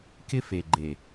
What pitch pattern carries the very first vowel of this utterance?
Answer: high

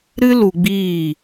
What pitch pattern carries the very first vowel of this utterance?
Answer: high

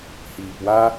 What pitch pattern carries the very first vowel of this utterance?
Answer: low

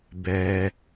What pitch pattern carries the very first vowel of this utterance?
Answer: low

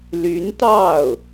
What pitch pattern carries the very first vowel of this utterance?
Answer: rising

